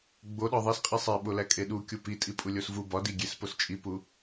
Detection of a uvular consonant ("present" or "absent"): present